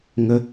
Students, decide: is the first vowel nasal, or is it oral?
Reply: oral